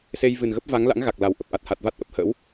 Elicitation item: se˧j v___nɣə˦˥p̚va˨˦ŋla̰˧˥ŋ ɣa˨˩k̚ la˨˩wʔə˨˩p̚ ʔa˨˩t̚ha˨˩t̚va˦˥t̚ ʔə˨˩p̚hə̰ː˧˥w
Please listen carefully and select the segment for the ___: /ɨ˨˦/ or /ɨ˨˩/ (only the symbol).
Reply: ɨ˨˩